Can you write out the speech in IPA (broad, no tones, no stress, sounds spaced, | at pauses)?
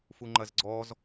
f u ŋ͡ǃ ɐ z ɡ͡ǀ ɔː z